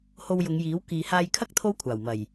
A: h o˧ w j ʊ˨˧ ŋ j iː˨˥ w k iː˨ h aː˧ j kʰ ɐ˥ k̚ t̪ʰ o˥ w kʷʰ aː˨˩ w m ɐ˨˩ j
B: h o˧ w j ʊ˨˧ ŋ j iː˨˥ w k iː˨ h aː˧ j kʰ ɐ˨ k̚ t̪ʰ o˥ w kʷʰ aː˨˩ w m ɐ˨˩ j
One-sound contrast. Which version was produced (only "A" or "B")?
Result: A